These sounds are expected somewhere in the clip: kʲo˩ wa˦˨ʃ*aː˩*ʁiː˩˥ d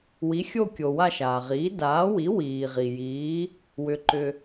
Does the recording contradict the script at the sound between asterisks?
no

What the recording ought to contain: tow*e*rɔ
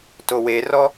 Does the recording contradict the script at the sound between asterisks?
no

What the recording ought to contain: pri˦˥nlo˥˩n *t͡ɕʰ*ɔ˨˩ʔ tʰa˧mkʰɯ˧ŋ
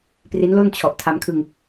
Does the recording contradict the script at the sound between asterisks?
no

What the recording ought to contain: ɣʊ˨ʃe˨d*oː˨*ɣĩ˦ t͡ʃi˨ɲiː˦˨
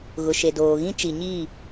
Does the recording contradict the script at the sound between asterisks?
no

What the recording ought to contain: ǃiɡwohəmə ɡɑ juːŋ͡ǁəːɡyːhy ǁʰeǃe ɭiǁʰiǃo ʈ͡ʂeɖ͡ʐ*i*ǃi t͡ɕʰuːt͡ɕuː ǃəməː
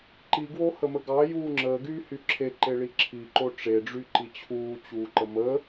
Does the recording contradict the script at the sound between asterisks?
yes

